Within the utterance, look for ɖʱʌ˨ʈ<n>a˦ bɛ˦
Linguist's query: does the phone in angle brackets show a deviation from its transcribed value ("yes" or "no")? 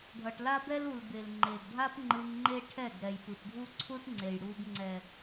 yes